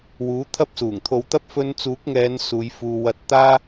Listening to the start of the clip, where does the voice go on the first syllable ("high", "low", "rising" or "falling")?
rising